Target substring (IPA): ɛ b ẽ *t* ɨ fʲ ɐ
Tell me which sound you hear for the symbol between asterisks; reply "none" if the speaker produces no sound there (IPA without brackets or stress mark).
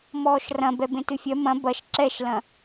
t